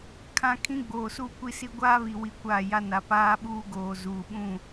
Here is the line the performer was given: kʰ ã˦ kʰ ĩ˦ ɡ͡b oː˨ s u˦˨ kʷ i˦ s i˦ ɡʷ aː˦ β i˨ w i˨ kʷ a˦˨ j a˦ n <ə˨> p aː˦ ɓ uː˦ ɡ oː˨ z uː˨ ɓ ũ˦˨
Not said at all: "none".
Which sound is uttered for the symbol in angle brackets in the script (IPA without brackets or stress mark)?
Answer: a˨